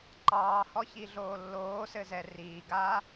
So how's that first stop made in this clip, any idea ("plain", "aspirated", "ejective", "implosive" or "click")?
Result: click